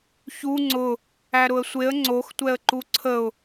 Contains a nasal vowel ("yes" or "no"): no